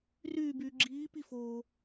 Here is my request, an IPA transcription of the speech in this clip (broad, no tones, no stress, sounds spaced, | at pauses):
r yː b yː ɡ͡ǁ iː p i f oː